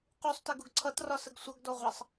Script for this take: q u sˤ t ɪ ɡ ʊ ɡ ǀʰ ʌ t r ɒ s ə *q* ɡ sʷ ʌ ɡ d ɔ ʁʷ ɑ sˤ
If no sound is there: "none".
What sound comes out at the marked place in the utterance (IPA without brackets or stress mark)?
none